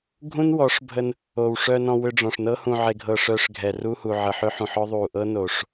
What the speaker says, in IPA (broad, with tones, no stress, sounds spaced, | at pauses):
ɡʱ ũ˦ n w ɔ˨˦ ʂ bʱ ə˧ n | o˨ w ʂ œ˧ n ɔ̃˧ w ʏ˧ ɖ͡ʐ ɔ̃˨ ʂ n ɤ˦ h ũ˧ ʕ e˧ ɡʱ ɤ˧ ʂ œ˧ ʂ ɡʱ ɛ˨ r u˧ h u˨ ʕ ə˨ ħ ʏ˦ ħ ũ˨ ħ ɔ˦ ðˤ u˨ ʔ ɤ˦ n o˨ ʂ